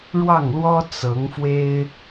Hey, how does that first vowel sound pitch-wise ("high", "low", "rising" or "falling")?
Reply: falling